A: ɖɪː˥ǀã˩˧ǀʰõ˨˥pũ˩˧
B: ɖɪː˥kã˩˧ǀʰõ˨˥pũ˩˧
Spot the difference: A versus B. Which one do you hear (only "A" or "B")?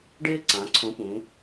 A